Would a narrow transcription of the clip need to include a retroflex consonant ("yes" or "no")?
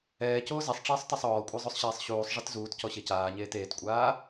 yes